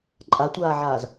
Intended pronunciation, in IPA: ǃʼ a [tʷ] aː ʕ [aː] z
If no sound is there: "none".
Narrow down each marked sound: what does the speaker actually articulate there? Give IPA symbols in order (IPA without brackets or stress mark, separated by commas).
tʷ, aː